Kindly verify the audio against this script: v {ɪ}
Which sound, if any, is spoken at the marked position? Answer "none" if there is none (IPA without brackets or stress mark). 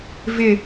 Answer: ɪ